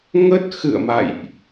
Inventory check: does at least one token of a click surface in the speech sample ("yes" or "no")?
no